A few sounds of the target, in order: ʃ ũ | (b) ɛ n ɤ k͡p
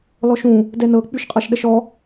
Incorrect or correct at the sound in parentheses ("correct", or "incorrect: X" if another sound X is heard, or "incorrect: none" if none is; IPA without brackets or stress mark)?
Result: incorrect: d